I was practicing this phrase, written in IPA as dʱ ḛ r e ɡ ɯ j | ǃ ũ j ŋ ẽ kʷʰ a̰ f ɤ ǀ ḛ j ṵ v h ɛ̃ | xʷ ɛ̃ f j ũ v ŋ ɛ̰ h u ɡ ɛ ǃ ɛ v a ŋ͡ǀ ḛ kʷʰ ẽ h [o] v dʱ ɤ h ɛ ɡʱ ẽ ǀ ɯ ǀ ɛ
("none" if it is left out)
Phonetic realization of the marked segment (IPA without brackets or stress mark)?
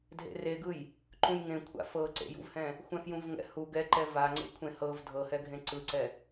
ɤ